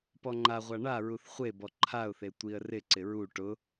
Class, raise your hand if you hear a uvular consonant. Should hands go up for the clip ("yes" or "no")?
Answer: yes